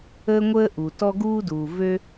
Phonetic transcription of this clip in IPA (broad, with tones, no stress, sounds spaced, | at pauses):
əː˥ ŋʷ əː˥ ʔ u˩ t ɔ˥ ɡ uː˥ d uː˩ v ø˥